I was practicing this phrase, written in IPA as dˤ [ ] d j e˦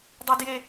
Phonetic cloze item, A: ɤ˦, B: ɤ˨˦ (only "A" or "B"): A